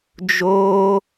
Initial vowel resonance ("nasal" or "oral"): oral